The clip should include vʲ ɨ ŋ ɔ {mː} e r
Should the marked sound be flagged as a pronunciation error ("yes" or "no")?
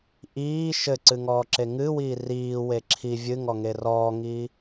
yes